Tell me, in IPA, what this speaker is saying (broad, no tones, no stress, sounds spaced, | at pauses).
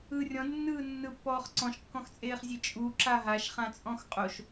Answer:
ɯ rʲ ɔ̃ d nː ɯː nː ɯ pː ɔː χ ǀ ɔ̃ ʃ kː ɔ̃ x t͡sʼ eː χ zʲ e t͡ʃʼ u ǁ a ɦ a ʃ χ ã t͡sʼ ɔ̃ x qʼ o ʃ